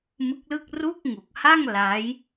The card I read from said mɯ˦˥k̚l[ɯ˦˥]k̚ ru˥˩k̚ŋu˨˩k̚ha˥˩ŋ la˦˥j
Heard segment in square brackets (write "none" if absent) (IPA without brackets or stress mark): ɯ˥˩